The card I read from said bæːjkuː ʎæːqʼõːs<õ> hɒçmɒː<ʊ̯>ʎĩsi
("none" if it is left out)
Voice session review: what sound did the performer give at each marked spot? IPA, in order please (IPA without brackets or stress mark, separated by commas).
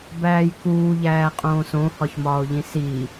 õ, ʊ̯